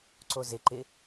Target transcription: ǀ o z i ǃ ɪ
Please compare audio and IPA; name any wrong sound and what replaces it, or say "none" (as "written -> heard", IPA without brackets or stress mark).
i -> ɪ